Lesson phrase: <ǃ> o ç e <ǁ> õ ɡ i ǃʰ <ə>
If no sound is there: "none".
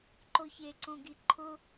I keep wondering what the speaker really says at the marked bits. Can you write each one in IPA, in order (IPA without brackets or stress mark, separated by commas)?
ǃ, ǀ, ʊ